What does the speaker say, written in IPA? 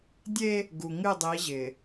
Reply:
dʲ e˦ | ɡ u˨ ŋ ɨ˦˨ dˤ i˨˦ ʑ ɪ˨

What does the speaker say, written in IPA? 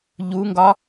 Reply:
ʎ u ŋ ɡ ɒ

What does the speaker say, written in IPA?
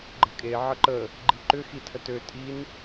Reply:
ɡ͡ǃ ə̤ kʼ e ʕ ə ǃ ə | ɡ͡ǃ i ǃ ʏ x i tʰ ə t ø tʼ i n

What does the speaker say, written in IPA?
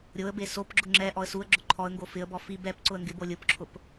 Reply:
ɾʲ o ə̯ b e s o p ɡ͡ǁ ʊ ŋ͡ǁ ɛ ʔ ɔ ə̯ s u ə̯ ɡ͡ǁ ʊ ǃʰ ɔ ə̯ ŋ ɡ o f ɪ ə̯ b ɔ f i b ɛ p ǀ ʊ ə̯ ŋ ɡ ɪ b o lʲ ʊ p ǁʰ ʊ p

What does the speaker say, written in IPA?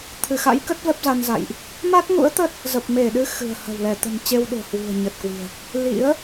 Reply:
t̪ʰ ɨ˧˩ x a̰˧˥ j k ə˦˥ t̚ v ɛ˦˥ p̚ z a˧ n z a̰˧˨ j ʔ | m a˦˥ t̚ ŋ ṵ˧˥ ə̯ t̪ ə˦˥ t̚ | z ə˨˩ p̚ m e˧˩ ɗ ɨ˨˦ x ɨ̤˨˩ ə̯ h ə̤˨˩ w l ɛ˧˩ t̪ ə̤˨˩ n t͡ɕ e˧ w ɗ o̤˨˩ h w ṳ˨˩ ə̯ ɲ ə˨˩ t̚ k w i̤˨˩ ə̯ | l ḭ˧˥ ə̯

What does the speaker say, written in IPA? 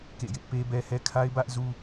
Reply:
k ḛ˦˨ j ɪ˦ ʔ p e˦ b ɛ˦ h ɛ˦ kʰ a˦ ɪ̯ b ä˦ ʔ z u˦

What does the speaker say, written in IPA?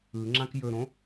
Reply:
ɯ ŋ͡ǁ ã k j ɵ ɾ õ

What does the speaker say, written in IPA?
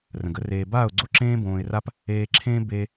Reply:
r ə̃˨ ɡ ə˦ r eː˧ b aː˦˨ ʊ̯ ɡ͡ǀ o˦ ǁ ẽː˦ b õː˧ ɪ̯ r a˦ p | eː˧ ǁʰ ẽː˦ b e˧

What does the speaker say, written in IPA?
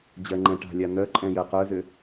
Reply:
d͡ʑ ɜ ŋ͡ǃ ɛ̃ ʈ a̤ lʲ a n̪ œ ǃʼ ɛ̃ j ɜ q œ z ʏ

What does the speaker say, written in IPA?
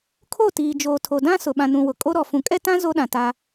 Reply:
kʰ o˦˨ t iː˨ d͡ʒ oː˨ tʰ o˨ d ã˦ s ʊ˨ ɓ ã˨ n ũ˨ w ʊ˨ kʼ o˦ ɾ ɔ˨ f ũ˨ kʼ ɛ˦ t ã˦ z o˦ ɗ ã˨ t a˦

